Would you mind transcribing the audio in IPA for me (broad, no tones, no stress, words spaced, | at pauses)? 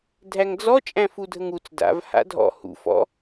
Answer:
dʱæŋd͡zɔ t͡ʃʼæ̃fudʱəŋut͡s da̰v ha̰dʱɔ̰ hṵ fɔ̰